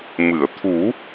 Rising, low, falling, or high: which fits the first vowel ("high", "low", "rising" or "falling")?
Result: low